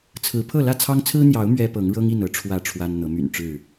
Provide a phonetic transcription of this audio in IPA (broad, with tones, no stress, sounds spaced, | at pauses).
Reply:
t͡sʰ ɹ̩˨˦ pʰ ɤ˥˨ l ä˥˨ t͡sʰ ɑ˦ ŋ t͡sʰ ɹ̩˦ n̪ j ɑ˨˦ ʊ̯ m ɥ ɛ˦ p ɤ˨˦ ŋ ɻ ɤ˦ ŋ i˥˨ n ɤ˨˦ ʈ͡ʂʰ w ä˥˨ ʈ͡ʂʰ w a˦ n n̪ ɤ˨˦ m y̰˨˩ n ʈ͡ʂ ɻ̩˥˨